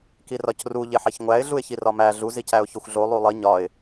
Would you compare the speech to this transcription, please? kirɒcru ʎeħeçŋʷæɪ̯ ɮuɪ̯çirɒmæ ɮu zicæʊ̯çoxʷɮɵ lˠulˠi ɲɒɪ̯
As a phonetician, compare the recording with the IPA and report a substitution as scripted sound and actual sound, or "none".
ɵ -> o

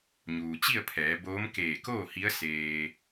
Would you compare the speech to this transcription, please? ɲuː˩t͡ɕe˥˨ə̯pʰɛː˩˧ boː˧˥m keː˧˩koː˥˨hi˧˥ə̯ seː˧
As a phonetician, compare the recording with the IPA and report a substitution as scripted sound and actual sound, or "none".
e˥˨ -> i˥˨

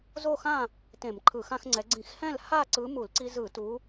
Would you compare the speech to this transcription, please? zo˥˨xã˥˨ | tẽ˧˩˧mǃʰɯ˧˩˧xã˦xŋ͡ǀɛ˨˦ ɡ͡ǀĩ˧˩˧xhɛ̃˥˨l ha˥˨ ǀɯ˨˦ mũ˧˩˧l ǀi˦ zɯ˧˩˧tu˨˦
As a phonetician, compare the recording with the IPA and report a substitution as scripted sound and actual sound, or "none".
ũ˧˩˧ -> u˧˩˧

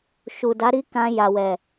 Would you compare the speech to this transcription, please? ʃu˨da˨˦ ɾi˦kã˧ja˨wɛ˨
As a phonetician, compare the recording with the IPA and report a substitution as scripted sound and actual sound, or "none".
none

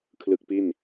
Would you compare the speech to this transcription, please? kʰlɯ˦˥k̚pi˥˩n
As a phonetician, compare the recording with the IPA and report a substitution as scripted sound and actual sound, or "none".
none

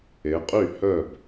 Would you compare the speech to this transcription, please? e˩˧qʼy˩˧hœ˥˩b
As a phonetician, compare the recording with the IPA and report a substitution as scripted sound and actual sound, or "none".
y˩˧ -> y˥˩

